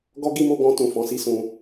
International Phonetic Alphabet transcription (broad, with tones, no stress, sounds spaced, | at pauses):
ɡ ɔ˦ ɡ i˦ m o˧ ɡ ɔ̃˧ t ũ˨ f ɔ̃˨˦ s i˦ s ũ˧